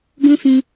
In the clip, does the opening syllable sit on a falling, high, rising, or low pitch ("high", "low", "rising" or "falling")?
high